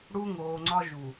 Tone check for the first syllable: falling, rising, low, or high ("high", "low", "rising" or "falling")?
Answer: high